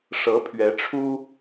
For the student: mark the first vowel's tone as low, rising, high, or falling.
rising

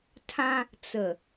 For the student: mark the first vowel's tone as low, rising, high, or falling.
high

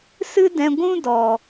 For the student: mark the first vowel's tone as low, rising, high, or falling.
high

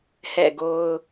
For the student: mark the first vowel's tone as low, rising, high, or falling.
falling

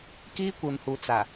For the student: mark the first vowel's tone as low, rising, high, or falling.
high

